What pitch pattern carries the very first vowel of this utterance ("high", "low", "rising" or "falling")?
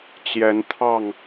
rising